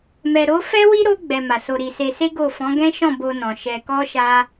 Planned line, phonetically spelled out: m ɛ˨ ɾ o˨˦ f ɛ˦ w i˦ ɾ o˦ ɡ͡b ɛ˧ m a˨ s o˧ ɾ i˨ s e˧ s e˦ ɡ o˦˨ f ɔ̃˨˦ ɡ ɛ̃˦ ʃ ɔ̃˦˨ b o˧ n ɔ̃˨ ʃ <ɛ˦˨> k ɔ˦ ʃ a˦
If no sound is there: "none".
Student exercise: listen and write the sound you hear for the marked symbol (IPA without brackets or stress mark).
ɛ˧